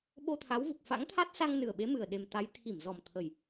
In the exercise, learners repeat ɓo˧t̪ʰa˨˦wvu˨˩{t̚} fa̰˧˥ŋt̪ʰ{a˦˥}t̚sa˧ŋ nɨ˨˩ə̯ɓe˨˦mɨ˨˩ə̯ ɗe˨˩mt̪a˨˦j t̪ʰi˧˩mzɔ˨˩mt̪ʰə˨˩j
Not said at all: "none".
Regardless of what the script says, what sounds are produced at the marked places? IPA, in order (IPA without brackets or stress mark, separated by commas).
k̚, a˦˥